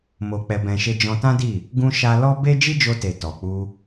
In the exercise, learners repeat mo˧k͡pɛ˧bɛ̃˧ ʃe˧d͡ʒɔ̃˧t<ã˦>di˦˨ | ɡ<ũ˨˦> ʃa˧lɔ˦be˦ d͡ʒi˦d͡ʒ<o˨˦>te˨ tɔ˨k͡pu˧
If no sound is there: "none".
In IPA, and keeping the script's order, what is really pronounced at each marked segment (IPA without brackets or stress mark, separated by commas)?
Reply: ã˦, ũ˧, o˧